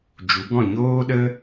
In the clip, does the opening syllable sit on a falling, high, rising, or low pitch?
rising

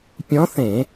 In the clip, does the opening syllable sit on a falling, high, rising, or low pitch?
rising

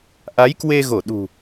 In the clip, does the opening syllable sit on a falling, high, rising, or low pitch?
rising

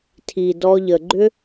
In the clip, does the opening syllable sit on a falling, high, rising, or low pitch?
low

